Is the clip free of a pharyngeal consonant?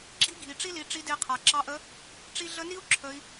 yes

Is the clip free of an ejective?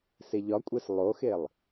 no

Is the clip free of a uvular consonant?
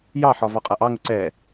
no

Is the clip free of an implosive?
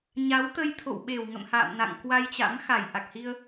no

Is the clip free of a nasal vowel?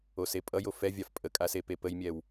yes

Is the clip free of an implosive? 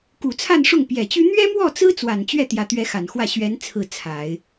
yes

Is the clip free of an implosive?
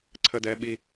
no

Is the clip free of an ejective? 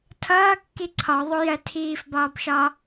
yes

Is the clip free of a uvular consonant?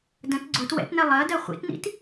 no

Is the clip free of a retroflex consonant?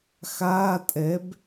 yes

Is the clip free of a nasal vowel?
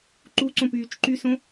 no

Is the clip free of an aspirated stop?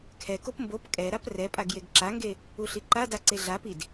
no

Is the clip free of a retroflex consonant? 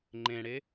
no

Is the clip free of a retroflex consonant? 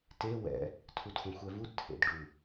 no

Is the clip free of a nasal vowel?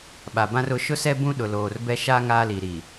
no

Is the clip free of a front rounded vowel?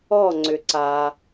no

